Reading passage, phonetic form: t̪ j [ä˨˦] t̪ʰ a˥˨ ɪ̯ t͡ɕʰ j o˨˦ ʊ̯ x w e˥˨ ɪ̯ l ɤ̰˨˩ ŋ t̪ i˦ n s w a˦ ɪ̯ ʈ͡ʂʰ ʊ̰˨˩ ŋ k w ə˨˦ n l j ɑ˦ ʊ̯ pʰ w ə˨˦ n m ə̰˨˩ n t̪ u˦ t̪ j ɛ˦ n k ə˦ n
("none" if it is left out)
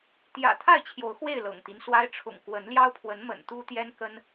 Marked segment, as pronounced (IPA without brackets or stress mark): ä̰˨˩